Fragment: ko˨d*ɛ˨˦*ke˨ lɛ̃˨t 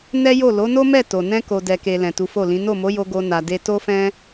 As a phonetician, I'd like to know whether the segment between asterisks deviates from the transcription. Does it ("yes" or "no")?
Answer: yes